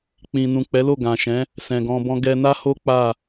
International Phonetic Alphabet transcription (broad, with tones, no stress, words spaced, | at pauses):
k͡pĩ˨nũ˨ k͡pɛ˨˦lo˦˨ɡã˨ʃɛ̃˨˦ | sɛ̃˨ɡɔ̃˧ bɔ̃˧ɡɛ˧na˦ho˦ k͡pa˦˨